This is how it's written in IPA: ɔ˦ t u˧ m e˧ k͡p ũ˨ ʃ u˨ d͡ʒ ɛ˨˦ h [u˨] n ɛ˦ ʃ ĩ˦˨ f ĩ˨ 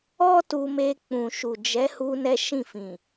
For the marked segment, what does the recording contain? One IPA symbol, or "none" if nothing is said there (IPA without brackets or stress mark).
u˧